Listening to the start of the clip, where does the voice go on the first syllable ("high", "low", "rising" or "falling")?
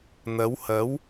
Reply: rising